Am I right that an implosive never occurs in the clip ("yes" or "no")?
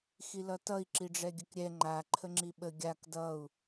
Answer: no